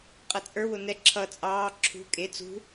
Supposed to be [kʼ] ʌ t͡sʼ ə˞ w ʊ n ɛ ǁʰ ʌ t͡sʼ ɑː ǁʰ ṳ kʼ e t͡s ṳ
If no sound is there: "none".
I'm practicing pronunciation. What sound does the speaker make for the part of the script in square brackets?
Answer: qʼ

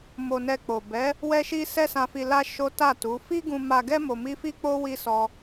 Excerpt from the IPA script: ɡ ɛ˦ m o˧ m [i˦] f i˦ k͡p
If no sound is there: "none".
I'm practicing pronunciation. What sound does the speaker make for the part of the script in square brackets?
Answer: i˦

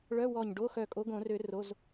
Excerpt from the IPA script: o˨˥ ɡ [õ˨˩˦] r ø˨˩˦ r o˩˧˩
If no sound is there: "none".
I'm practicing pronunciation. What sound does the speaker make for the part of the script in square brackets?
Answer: õ˨˩˦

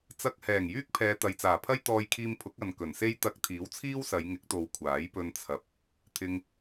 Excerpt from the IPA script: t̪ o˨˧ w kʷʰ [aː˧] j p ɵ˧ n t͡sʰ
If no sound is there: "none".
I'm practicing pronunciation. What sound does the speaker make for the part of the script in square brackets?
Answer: aː˨˥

